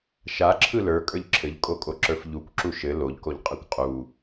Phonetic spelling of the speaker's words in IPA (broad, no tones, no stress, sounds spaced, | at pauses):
ʃ a ǁʰ ɯ l ə˞ kʼ ə˞ ʎ ǁʰ ɘ ʎ kʼ o kʼ o ǁ ə˞ f ʎ u kʷ ǁ u ʃ ɘ l o ʎ k o ʎ qʼ ɯ kʷ qʼ u